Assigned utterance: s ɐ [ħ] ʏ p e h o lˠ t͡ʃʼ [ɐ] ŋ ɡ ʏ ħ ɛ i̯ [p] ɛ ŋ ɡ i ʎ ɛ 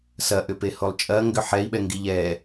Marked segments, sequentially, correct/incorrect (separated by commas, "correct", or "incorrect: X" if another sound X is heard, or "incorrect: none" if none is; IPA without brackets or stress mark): incorrect: ʔ, correct, incorrect: ɓ